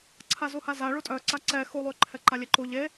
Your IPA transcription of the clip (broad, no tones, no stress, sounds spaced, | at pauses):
ǀʰ a z u h a z a ɭ u tʼ œ ǀ a ǀ ɛ x u lˠ y ǃʰ ɛ ǃ a lʲ e ǃ u ʎ e